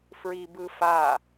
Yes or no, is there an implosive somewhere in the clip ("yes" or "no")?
no